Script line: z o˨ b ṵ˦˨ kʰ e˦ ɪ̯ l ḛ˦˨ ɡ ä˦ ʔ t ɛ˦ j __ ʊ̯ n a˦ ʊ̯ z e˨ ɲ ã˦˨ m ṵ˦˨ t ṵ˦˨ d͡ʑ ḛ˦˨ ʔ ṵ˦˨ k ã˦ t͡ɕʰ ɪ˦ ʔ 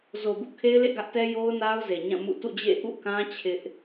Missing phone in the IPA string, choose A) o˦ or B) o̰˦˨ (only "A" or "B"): A